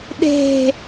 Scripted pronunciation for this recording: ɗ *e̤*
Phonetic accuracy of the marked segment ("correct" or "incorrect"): correct